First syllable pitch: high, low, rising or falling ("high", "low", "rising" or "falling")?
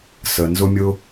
low